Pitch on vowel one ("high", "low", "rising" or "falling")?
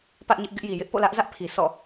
high